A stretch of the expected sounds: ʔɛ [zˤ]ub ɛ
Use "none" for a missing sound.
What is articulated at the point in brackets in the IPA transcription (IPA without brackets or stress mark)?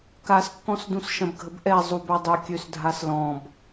zˤ